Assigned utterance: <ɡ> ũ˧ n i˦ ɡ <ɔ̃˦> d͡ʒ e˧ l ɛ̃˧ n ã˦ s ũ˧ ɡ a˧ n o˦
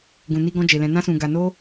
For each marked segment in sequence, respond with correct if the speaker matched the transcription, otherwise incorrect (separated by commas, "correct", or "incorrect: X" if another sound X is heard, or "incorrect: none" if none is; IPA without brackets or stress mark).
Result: correct, correct